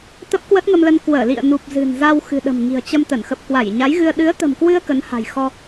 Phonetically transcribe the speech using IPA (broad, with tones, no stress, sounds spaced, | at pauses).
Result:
t̪ ə˦˥ p̚ k w ə˦˥ t̚ ŋ ə˧ m l ə˧ n k w əː˧˩ l ḭ˧˨ ə̯ n u˨˩ p̚ z ɨ̤˨˩ n z a˧ w x ɨ̤˨˩ ɗ ə̤˨˩ m ŋ i̤˨˩ ə̯ t͡ɕ ə˧ m t̪ ə˧˩ n x ə˨˩ p̚ k w a˧˩ j ɲ a˨˦ j ɣ ɨ˧ ə̯ ɗ ɨ˨˦ ə̯ t̪ ə̤˨˩ m k w ɨ˧ ə̯ k ə˨˦ n h a̤˨˩ j x ɔ˧